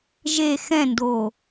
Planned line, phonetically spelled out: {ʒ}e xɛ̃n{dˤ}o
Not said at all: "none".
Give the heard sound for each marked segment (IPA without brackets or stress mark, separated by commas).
ʒ, d